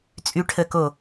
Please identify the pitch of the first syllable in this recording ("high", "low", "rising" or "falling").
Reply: rising